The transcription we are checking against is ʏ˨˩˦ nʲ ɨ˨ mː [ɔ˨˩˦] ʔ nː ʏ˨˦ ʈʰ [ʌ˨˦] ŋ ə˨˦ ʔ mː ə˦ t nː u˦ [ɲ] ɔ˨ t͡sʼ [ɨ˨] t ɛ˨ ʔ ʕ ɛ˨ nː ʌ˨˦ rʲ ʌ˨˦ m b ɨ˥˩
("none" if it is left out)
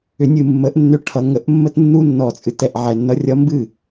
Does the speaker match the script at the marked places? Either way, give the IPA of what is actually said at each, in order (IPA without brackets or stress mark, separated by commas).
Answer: ə˨˩˦, ʌ˨˩˦, nː, ɨ˨